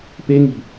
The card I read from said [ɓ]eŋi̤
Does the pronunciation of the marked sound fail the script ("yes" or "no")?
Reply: yes